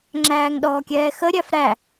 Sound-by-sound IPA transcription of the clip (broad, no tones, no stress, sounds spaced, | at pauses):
ŋ͡ǁ æː ŋ ɗ ɔː kʲ ɛː x ə ɾʲ æ f ɾ æ